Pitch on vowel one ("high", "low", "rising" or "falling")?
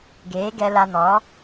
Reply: rising